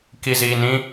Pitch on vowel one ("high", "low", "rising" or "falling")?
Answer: low